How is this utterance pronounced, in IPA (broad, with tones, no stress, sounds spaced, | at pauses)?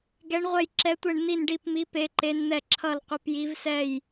ɡ ɛ˦˥ ɳ ʁʷ ɛ˥˧ j ǁ ɛ˦˥ tʷ ɛ˥˧ ɳ n̪ i˥˧ n ɖ i˥˧ p m i˦˥ p e˦˥ ǃ e˦˥ n n̪ ɛ˥˧ ǁʰ ʌ˥˧ l qʷ ʌ˦˥ p j i˦˥ v s ɛ˥˧ j